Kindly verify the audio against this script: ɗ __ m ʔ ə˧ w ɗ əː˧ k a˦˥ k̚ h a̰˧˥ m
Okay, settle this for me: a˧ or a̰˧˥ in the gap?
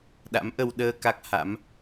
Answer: a̰˧˥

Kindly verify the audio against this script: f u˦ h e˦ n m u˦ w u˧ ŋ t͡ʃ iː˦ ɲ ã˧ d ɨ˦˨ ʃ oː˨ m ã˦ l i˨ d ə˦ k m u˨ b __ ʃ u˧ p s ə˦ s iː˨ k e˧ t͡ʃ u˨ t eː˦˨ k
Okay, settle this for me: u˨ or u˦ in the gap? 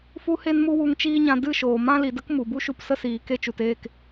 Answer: u˦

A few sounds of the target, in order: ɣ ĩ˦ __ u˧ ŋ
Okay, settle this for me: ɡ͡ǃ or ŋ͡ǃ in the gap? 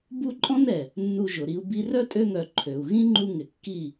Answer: ŋ͡ǃ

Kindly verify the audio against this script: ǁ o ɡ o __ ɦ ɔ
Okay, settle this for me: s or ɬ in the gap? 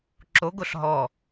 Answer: ɬ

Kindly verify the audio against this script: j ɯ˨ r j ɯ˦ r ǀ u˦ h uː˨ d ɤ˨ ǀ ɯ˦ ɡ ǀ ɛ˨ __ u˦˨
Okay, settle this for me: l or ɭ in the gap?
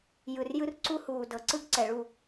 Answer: ɭ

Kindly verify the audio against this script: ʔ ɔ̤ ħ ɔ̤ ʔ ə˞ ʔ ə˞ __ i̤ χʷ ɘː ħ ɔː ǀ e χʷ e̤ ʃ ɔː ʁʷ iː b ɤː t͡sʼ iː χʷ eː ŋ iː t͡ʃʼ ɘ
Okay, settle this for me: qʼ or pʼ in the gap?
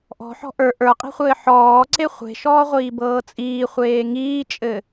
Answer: qʼ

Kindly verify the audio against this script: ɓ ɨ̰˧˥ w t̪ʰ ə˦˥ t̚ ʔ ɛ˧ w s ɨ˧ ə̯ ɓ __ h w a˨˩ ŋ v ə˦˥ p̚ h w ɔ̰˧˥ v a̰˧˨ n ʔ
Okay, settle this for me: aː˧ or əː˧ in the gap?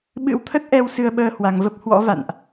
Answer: əː˧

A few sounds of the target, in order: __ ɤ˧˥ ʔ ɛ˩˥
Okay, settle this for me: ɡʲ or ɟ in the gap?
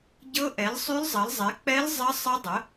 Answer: ɟ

